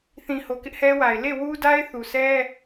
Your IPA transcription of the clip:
θ ĩ˨ h o˨ k ɪ˦ ʔ h ɛ˦ w a˨ ɪ̯ l e˦˨ w u˦ d a˦ ɪ̯ θ u˨ sʰ ɛ˦

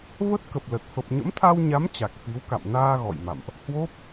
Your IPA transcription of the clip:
v ə˦˥ t̚ k ə˨˩ p̚ l ə˨˩ t̚ f ə˨˩ p̚ ɲ ə̰˧˥ m t̪ʰ a˧ w ɲ a˨˦ m t͡ɕ a˨˩ k̚ f i˨˦ w k a̰˧˨ m n aː˧ ɣ ɔ̰˧˨ j m a̰˧˨ m ʔ | h w o˦˥ p̚

